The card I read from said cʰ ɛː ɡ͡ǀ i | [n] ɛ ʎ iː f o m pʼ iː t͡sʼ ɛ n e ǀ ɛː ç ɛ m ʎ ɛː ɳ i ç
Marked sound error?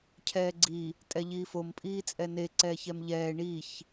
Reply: yes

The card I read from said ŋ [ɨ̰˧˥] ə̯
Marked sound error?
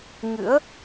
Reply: no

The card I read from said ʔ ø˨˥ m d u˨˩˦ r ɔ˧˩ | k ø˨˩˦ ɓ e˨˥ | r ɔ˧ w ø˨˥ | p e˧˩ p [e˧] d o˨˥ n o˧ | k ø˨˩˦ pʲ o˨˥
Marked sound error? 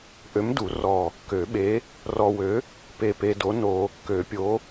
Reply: no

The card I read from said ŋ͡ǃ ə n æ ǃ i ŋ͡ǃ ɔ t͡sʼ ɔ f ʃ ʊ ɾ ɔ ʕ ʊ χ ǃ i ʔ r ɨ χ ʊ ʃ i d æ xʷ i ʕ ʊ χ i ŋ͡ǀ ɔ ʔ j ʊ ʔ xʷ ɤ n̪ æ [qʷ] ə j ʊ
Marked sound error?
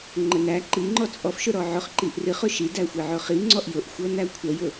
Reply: yes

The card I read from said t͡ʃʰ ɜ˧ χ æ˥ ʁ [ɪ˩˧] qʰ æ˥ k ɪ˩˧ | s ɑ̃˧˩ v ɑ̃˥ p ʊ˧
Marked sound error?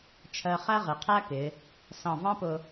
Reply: no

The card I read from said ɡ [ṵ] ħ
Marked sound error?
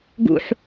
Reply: no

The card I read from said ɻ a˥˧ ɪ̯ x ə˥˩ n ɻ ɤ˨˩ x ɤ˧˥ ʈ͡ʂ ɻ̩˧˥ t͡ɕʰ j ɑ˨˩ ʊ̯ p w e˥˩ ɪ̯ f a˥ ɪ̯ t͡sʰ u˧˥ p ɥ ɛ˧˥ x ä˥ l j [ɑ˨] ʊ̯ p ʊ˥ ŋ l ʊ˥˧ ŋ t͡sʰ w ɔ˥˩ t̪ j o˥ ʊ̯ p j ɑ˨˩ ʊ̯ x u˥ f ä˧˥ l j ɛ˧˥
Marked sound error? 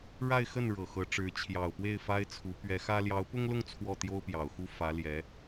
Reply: yes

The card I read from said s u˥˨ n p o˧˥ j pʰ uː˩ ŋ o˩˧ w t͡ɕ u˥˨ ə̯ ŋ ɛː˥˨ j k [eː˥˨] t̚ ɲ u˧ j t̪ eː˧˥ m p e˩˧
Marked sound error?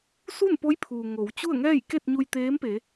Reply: yes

